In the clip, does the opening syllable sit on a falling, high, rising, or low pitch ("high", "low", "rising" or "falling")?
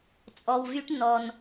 low